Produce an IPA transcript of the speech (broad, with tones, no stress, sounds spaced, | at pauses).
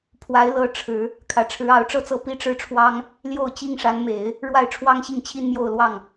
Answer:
pʰ w a˧˥ ɪ̯ l ɤ˧˥ ʈ͡ʂʰ ɻ̩˨˩˦ | kʰ ä˨˩ ʈ͡ʂʰ ɻ̩˧˥ ɑ˧˥ ʊ̯ ʈ͡ʂ ɤ˥ t͡s ɤ˥˩ p i˥ ʈ͡ʂ ɻ̩˥˩ ʈ͡ʂʰ w ɑ˥ ŋ | l j o˥˩ ʊ̯ t͡ɕ i˥ ŋ ʂ a˧˥ n m e˨˩˦ ɪ̯ | ɻ w a˥˩ ɪ̯ ʈ͡ʂʰ w ɑ˥ ŋ ɕ i˥˩ ŋ t͡ɕʰ i˥ n m j o˥˧ ʊ̯ l w ɑ˥˩ ŋ